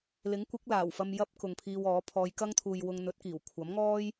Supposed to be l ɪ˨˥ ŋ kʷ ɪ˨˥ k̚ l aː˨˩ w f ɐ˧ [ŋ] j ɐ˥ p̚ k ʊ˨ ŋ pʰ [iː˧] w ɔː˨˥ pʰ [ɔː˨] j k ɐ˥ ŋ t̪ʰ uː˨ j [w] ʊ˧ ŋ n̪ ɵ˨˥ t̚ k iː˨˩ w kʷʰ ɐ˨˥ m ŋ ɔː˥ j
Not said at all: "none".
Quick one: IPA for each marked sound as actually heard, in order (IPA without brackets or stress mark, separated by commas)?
m, iː˧, ɔː˨˧, w